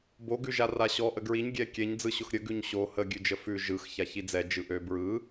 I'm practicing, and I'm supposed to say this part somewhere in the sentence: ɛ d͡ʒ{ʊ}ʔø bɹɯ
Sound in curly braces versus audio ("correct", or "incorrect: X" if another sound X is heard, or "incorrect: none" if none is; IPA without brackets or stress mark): incorrect: ɯ